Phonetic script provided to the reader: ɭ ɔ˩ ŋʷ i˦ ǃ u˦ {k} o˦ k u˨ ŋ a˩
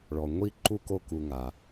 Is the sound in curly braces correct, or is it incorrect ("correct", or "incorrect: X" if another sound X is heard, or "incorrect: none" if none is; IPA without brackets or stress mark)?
correct